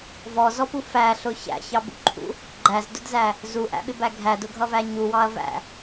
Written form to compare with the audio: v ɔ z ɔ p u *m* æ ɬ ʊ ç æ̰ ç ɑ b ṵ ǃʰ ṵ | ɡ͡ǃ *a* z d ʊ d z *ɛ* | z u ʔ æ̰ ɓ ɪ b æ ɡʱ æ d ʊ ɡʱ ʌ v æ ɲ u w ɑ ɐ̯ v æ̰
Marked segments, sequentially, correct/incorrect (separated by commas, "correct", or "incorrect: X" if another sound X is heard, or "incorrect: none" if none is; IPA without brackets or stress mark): incorrect: f, incorrect: æ, incorrect: æ